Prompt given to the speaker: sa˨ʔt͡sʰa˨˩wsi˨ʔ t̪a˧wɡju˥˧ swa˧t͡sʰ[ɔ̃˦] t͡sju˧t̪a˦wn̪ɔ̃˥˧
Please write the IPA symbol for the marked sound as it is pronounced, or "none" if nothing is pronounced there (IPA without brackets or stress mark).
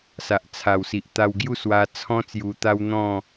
ɔ̃˦